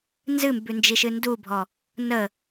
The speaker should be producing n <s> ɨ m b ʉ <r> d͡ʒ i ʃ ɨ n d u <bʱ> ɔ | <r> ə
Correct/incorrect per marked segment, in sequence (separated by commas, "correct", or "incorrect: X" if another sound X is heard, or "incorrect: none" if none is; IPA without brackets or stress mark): incorrect: z, incorrect: n, correct, incorrect: n